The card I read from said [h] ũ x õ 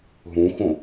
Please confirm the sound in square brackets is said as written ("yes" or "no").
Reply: no